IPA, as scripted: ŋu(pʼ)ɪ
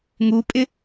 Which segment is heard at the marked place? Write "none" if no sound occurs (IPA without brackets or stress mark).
pʼ